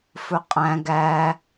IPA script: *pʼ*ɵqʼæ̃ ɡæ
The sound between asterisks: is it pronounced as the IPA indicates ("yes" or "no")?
no